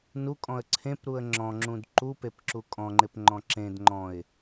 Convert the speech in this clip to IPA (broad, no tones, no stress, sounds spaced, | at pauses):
n u kʼ ɔ̃ ə̯ ǀʰ ẽ p ɾ u ə̯ ŋ͡ǁ ɔ̃ ŋ͡ǁ ũ d ǃ u p e p ǁ u kʼ ɔ̃ ŋ͡ǃ ɪ p ŋ͡ǃ ɔ̃ ǁ ẽ d ŋ͡ǃ ɔ̃ ɪ̯